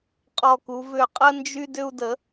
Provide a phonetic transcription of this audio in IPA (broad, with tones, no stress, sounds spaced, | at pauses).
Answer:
qʼ ɔ˧˩ k u˩˧ v ʏ˧˩ qʼ ə˦ n d͡ʒ y˦ d ʏ˦ u̯ d ə˩˥